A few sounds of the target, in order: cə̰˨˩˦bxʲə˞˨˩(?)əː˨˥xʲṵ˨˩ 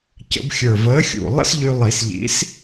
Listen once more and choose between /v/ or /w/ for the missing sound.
v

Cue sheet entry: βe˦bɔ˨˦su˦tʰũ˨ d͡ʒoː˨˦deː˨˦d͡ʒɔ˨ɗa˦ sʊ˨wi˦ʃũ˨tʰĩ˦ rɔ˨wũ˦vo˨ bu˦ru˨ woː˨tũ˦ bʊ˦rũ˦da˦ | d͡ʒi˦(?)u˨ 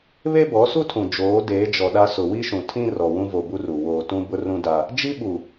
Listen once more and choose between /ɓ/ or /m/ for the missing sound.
ɓ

